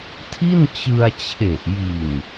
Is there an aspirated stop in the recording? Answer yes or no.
yes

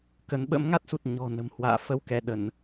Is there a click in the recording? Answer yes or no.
no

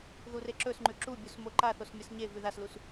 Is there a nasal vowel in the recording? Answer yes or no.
no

